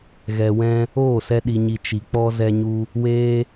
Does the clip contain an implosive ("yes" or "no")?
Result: yes